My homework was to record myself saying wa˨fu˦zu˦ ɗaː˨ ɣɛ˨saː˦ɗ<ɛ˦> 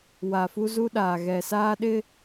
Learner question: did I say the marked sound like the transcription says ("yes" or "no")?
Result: no